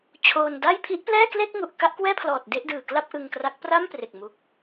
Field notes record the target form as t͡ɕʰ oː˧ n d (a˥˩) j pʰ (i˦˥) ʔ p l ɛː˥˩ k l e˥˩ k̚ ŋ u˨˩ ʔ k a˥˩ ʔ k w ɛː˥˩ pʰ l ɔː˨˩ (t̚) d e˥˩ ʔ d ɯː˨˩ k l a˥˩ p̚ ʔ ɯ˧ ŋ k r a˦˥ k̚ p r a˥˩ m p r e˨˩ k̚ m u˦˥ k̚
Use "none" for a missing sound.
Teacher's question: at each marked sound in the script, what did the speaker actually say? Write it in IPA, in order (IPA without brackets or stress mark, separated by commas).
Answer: a˥˩, i˦˥, t̚